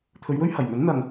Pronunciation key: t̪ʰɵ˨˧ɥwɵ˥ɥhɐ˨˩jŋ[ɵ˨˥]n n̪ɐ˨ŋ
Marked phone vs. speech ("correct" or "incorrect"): correct